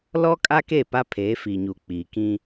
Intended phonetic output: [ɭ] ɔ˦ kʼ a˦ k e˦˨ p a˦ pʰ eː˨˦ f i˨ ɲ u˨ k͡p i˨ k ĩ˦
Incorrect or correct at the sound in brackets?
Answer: incorrect: l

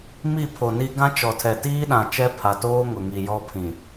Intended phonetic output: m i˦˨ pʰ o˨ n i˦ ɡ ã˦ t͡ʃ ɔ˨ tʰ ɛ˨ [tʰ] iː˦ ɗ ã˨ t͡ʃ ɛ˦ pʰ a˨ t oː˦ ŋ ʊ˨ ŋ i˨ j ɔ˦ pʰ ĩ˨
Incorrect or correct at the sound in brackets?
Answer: incorrect: t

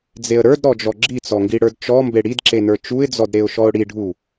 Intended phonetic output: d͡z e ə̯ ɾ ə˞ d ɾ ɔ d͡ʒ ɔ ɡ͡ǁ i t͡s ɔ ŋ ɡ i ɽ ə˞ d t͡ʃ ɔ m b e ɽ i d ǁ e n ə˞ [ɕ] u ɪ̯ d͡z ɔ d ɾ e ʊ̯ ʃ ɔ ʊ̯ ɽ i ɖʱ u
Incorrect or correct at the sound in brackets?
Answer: incorrect: t͡ʃ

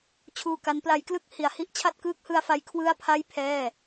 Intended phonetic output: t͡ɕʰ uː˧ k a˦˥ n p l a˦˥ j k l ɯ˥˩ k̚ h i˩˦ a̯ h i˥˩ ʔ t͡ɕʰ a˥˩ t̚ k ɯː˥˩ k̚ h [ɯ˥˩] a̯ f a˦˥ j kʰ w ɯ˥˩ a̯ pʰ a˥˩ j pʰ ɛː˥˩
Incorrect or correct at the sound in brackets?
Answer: incorrect: ɯ˧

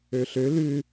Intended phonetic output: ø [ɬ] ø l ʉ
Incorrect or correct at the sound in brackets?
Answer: correct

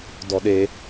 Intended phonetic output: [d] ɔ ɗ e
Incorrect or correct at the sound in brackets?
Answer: correct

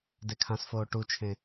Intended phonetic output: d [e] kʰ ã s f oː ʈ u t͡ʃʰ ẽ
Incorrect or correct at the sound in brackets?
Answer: correct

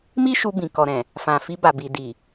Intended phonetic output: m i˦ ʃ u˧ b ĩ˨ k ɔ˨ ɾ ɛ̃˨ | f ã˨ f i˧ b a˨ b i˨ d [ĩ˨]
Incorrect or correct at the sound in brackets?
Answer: incorrect: i˨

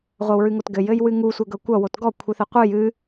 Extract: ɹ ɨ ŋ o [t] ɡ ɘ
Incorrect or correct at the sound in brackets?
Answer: correct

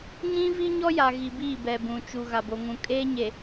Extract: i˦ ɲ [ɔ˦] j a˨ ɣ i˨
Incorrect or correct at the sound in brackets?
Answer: correct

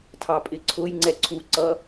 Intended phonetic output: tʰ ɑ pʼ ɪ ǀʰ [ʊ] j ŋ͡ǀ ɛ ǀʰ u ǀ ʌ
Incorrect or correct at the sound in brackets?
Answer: correct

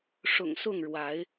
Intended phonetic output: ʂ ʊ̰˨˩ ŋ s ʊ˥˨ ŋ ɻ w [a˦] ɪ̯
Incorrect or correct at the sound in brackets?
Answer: incorrect: a˨˦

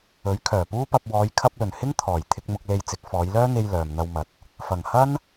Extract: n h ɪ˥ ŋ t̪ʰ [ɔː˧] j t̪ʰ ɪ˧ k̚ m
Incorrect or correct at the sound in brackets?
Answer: incorrect: ɔː˨˩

